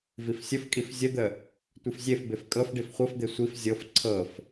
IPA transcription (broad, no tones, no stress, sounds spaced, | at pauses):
v i f sʲ ə f kʼ i f zʲ ə d̪ ə | tʷ ɯ f zʲ e f b e f kʼ ɤ f ɖ i f χʷ ɤ f d̪ e sʷ i f zʲ ɤ f ǀʰ ɤ f